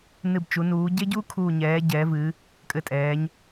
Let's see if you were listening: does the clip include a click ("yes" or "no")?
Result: no